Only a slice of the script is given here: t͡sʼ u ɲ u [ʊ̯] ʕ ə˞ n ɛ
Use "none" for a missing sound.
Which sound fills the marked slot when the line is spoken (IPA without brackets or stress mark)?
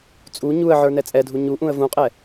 ə̯